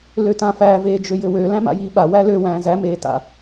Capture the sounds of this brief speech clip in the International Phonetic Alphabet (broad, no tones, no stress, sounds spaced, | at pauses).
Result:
l ø t ã f æ v eː d͡ʒ ø j ɘ w ø l æ̃ m a̰ j iː ɓ a w æ l ø w æ̃ː z æ m eː t a̰